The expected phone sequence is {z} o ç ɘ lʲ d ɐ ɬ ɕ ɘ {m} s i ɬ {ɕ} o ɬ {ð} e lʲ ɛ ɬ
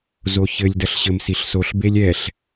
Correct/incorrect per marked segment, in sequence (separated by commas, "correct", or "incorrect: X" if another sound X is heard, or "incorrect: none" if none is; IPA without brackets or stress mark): correct, correct, incorrect: s, incorrect: b